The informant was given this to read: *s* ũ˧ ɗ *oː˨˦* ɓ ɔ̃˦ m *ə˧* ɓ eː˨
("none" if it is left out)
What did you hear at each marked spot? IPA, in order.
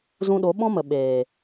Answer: z, o˨˦, ə˨

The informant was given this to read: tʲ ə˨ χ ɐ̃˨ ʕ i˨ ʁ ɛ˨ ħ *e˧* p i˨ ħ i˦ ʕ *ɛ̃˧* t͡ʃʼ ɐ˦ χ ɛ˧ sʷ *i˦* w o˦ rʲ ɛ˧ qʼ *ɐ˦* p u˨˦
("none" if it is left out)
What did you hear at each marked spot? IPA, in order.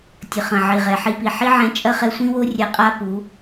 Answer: i˧, ɛ̃˧, ĩ˦, a˦

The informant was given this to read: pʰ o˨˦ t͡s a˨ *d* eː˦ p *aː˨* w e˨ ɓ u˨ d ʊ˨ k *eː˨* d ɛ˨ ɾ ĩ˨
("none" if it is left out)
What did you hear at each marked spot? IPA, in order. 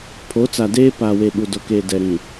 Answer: d, aː˨, eː˨

